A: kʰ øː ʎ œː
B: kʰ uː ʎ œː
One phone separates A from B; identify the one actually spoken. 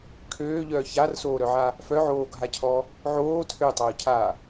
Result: A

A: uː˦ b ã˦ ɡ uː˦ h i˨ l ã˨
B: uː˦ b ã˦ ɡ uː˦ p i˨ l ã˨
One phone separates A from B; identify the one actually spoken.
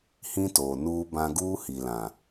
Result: A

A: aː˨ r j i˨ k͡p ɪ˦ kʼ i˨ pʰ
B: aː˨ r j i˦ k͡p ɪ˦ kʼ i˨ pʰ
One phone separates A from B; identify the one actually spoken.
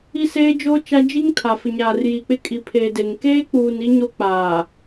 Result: A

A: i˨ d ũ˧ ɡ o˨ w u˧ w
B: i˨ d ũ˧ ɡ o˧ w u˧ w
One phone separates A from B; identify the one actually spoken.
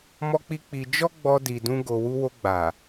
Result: B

